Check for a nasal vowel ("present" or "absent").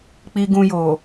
present